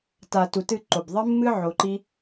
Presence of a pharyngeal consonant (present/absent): present